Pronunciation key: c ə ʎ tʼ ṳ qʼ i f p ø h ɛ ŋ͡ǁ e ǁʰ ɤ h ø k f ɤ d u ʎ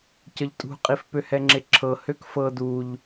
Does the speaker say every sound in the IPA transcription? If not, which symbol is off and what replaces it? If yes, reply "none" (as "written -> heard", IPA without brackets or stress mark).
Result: none